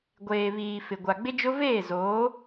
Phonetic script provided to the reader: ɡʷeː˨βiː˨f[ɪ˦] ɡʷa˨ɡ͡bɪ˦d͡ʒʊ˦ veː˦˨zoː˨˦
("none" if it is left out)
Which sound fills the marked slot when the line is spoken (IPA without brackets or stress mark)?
ɪ˨